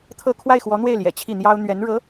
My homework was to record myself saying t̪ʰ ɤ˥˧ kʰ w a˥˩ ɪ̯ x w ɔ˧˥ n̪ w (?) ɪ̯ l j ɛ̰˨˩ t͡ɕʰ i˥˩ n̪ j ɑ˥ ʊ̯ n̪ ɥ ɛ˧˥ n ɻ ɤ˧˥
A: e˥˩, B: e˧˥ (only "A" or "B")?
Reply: A